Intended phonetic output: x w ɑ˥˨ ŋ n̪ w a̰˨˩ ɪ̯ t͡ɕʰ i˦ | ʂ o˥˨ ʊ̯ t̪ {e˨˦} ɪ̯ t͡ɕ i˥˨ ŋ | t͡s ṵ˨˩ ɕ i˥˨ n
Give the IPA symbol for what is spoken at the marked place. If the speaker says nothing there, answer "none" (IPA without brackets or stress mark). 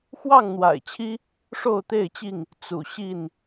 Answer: e˥˨